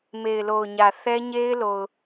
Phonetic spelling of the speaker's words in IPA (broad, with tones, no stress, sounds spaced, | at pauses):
m e˨ ɪ̯ l o˨ ʊ̯ ɲ ä˨ θ ɛ˦ ɲ e˦ ɪ̯ l o˨ ʊ̯